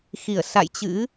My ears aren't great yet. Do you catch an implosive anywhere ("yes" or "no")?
no